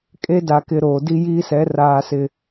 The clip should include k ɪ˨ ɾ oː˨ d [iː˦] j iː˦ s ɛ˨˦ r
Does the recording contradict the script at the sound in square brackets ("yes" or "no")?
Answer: yes